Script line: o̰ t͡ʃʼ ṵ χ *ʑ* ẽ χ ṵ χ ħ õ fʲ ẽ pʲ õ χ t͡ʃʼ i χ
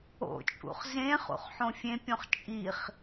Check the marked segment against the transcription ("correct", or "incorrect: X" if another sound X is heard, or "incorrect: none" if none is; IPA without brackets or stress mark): incorrect: z